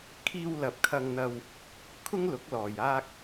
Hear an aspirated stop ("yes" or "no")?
yes